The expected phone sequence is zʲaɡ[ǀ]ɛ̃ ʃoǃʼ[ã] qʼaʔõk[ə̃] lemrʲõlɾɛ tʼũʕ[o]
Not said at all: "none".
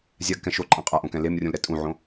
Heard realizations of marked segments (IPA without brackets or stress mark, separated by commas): k, ã, ɛ̃, õ